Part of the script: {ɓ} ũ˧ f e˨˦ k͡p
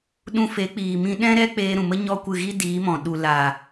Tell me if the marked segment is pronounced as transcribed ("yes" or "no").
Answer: no